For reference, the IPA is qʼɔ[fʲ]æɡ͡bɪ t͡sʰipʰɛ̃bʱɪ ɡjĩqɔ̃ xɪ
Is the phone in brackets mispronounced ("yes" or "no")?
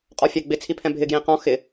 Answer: no